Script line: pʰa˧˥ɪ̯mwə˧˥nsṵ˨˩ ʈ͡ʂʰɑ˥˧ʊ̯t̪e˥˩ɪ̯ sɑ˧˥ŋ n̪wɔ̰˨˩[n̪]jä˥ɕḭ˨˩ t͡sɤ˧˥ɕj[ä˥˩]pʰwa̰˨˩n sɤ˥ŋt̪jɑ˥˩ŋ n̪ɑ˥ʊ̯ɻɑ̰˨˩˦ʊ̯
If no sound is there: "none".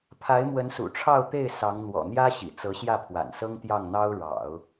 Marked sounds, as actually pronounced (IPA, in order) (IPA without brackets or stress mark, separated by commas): n̪, ä˥˩